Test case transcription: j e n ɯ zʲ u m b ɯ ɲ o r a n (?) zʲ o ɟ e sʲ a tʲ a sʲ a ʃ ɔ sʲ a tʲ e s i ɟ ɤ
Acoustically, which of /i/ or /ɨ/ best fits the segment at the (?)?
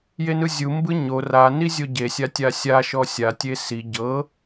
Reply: i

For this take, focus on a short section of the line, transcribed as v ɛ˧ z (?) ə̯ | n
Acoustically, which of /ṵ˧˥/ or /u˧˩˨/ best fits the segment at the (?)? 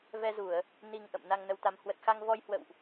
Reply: u˧˩˨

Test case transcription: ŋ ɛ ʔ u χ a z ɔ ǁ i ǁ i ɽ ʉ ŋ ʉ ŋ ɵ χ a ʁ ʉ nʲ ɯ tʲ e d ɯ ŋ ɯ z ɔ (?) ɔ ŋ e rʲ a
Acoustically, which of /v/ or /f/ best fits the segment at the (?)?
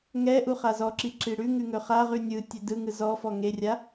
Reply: f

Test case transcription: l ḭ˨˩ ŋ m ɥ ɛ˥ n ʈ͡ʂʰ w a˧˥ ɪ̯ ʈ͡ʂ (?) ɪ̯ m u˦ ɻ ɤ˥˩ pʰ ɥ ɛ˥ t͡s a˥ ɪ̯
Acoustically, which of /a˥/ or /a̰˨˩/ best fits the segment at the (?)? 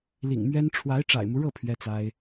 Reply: a̰˨˩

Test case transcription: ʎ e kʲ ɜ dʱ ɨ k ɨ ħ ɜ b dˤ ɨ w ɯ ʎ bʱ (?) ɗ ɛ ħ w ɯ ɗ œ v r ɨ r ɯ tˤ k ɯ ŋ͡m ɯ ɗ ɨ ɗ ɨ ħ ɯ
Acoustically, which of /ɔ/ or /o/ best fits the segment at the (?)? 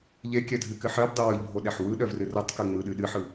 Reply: o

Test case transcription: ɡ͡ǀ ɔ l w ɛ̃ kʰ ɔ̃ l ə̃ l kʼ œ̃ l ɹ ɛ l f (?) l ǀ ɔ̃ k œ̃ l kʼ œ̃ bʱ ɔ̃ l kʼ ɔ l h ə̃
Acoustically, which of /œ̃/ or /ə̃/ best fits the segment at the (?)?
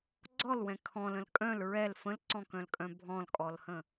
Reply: ə̃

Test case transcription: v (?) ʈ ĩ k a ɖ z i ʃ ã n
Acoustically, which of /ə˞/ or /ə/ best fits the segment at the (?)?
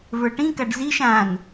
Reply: ə˞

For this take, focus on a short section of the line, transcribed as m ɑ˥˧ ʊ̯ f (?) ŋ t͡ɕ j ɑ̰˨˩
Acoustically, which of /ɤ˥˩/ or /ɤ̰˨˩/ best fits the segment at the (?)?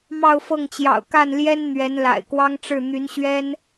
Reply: ɤ˥˩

